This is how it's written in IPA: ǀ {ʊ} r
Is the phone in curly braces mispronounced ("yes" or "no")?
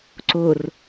no